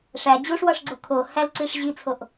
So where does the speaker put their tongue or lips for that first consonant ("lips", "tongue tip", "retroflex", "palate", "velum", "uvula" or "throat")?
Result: retroflex